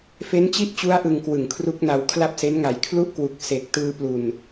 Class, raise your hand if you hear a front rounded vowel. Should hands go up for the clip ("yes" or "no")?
no